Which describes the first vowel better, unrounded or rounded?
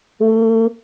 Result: rounded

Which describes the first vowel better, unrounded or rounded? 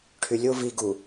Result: rounded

